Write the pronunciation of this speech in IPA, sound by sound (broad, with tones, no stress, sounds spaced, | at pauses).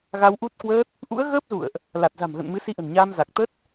ɣ a˧ w ʔ u˦˥ t̚ k w əː˦˥ t̚ | ʔ ṵ˧˥ ə̯ ɣ əː˦˥ p̚ z ṵ˧˨ ə̯ ʔ | l a˨˩ t̚ z a̤˨˩ m ɣ ə̰˧˨ n m ɨ˨˦ s i˧ ʔ ə̤˨˩ n ɲ aː˧ m z a˨˩ k̚ t̪ ə˦˥ t̚